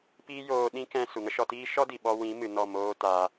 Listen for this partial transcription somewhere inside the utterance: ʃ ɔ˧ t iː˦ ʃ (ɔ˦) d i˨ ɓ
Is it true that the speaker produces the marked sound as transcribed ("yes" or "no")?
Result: yes